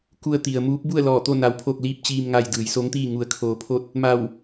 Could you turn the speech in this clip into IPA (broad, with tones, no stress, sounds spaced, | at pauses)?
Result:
k u˧ ə̯ t̪ i˩ ə̯ m uː˧˥ p̚ b u˥˨ ə̯ l ɔː˧˩ t̪ o˥˨ n a˧ w pʰ o˥˨ k̚ l iː˥˨ p̚ t͡ɕ iː˧ m ŋ a˧ j d ɯː˩˧ j s o˧˥ ŋ t̪ iː˥˨ ŋ u˧ ə̯ kʰ oː˧ pʰ o˥˨ t̚ | m a˧˩ w